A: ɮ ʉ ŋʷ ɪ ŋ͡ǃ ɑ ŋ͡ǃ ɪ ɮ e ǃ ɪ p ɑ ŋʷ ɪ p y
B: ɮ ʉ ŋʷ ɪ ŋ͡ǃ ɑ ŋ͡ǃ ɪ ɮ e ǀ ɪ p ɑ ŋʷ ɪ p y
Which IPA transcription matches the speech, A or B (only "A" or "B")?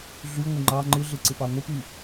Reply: B